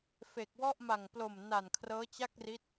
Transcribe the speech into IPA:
f e˨˩ k̚ w ɔ˥˩ ʔ m a˨˩ ŋ p l o˨˩ m n a˨˩ n kʰ r ɤː˦˥ t͡ɕ a˥˩ k̚ r i˦˥ t̚

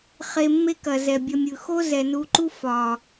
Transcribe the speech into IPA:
χ e˧ mː e˦ k ɐ˨ z ɛ˨ bʲ ɐ˧ mʲ ɯ˨ x o˦ z ɛ˨ n u˧ ǃ u˦ f ɒ˨

